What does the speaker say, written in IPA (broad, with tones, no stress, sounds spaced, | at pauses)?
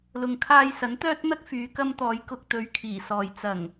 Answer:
l ʊ˨ ŋ kʰ aː˧ j s ɐ˨˥ n t̪ œː˥ t̚ n̪ ɐ˥ k̚ f yː˨˧ k ɐ˧ m t̪ ɔː˨˧ j k ʊ˨ k̚ t̪ ɵ˨˥ ɥ kʰ iː˨˩ s ɔː˨ j t͡s ɐ˨˩ ŋ